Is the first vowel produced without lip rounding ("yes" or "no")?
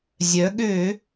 no